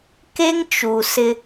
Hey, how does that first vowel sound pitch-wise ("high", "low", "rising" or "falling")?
high